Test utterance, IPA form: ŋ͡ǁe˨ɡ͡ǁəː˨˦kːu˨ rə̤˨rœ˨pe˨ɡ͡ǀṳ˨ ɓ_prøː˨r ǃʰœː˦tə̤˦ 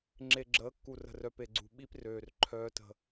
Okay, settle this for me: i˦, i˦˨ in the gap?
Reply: i˦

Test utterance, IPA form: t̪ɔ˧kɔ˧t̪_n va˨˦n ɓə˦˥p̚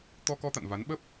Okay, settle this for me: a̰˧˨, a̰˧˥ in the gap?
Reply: a̰˧˨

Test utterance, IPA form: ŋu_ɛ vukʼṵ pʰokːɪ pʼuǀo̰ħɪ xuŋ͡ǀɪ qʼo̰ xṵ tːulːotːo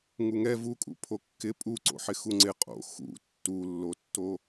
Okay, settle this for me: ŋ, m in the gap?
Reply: ŋ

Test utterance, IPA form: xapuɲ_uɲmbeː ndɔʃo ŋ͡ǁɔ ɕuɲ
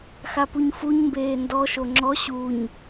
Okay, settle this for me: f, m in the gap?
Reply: f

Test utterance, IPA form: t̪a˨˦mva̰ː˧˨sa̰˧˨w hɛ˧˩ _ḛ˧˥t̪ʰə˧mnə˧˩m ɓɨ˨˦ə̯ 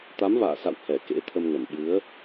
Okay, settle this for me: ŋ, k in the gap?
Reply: k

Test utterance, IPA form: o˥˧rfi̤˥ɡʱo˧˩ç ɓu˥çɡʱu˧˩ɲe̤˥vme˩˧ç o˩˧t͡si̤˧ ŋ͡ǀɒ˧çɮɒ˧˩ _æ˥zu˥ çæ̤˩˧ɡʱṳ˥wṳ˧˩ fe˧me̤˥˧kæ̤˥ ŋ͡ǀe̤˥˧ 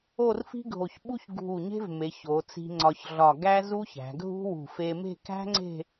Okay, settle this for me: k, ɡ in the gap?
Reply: ɡ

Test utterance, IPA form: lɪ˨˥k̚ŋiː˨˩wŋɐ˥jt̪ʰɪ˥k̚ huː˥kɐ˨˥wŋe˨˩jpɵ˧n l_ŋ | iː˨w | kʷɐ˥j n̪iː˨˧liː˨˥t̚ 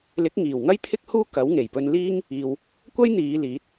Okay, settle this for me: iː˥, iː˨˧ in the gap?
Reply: iː˥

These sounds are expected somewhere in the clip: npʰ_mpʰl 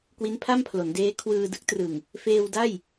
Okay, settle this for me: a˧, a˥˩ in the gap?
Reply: a˥˩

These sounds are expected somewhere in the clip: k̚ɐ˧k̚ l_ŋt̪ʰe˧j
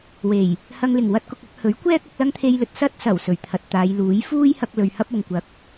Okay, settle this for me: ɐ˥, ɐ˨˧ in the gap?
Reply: ɐ˥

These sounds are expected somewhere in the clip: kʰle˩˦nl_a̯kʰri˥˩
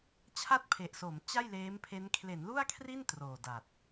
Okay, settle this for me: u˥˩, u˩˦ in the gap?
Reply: u˥˩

